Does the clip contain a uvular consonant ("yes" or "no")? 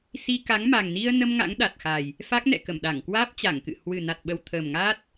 no